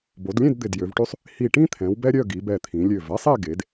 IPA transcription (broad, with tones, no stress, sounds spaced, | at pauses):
b o˩˧ d lʲ ẽ˥˧ d d̪ ɪ˧˩ d j ø˩˧ v ʈ y˥ sˤ | h i˧˩ ʈ ĩ˥ t̪ʰ ɛ̃˩˧ w b ɛ˥ ɾʲ œ˥˧ ɡ i˩˧ b ɛ˧˩ t̪ʰ ĩ˩˧ lʲ ø˧˩ v ɛ˥ sˤ e˥˧ ɡ e˩˧ d